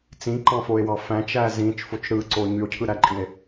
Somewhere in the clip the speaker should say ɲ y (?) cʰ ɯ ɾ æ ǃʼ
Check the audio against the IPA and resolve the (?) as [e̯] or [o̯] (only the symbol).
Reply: o̯